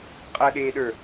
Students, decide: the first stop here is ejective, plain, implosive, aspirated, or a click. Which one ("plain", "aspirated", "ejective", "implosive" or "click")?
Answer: ejective